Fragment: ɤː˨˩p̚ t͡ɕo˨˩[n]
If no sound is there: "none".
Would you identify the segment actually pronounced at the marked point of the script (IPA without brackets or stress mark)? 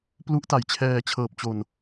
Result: n